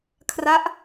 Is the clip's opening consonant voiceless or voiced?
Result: voiceless